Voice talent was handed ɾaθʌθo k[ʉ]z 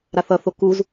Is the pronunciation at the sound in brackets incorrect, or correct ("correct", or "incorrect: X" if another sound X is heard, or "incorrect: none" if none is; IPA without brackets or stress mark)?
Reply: incorrect: u